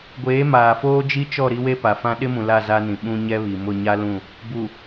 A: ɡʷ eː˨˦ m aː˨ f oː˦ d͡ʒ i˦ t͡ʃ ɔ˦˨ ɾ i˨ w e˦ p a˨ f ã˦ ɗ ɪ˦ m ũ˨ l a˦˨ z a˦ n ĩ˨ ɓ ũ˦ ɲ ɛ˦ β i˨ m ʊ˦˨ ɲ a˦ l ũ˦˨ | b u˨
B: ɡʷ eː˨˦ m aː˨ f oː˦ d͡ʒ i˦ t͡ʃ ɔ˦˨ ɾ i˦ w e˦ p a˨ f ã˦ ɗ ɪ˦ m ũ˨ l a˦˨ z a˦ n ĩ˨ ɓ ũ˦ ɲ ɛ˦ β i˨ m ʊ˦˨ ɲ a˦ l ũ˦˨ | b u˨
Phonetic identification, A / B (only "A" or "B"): B